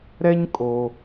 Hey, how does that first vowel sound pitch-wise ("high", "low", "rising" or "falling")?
high